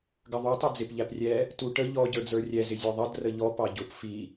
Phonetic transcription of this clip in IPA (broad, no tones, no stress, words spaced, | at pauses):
ɡəðˤu tˤɛd͡zɪp ʎæprʲɛ | tuʈə ʎɔ ɟə˞d͡zə˞rʲɛ zɪzʲɔðˤʌd rəʎɔ pɑɟʊp fi